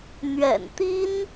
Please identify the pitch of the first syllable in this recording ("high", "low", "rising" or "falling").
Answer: low